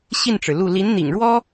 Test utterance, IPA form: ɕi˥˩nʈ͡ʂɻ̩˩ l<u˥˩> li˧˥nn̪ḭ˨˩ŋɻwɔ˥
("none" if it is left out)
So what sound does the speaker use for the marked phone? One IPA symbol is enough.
u˥˩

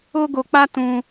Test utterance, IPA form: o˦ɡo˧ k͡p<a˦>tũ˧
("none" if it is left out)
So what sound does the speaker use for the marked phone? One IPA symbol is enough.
a˦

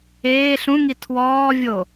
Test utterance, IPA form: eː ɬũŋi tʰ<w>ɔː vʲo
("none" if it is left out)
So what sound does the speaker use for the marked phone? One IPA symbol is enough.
w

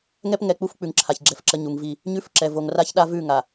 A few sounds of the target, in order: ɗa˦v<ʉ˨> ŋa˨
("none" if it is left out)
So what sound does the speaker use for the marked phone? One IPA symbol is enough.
ʉ˦˨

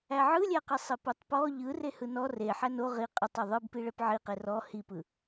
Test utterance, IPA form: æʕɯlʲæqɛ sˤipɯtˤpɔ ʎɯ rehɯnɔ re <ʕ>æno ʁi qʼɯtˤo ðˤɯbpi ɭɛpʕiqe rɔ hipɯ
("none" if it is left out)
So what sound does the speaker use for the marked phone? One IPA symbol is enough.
ħ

